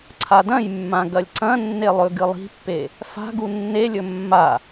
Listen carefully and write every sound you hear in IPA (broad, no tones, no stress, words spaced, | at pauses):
ǀʰadɐ̃jmːã ɡɐlʲǀɐ̃nːe lˠɵɡɨlˠi̤pːe | fa̤ ɡunːelʲɵ mːa